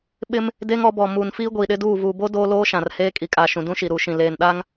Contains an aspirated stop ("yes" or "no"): no